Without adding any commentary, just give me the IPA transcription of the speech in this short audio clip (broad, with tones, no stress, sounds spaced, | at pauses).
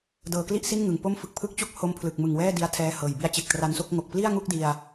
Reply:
d ɤː˧ k l i˥˩ ʔ s i˥˩ n ŋ ɯ˨˩ ŋ p o˥˩ m f ɯ˦˥ k̚ pʰ ɯ˦˥ k̚ t͡ɕ u˦˥ k̚ h o˦˥ m pʰ l ɯ˨˩ k̚ m ɯ˨˩ ŋ w ɛː˥˩ d i˧ a̯ tʰ ɛː˧ h ɤː˨˩ j b i˧ a̯ t͡ɕ e˨˩ k̚ t r a˧ n s o˥˩ k̚ ŋ o˨˩ k̚ p l i˥˩ a̯ ŋ u˥˩ k̚ d i˧ a̯